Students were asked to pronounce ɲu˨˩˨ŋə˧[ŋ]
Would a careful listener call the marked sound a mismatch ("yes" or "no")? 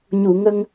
no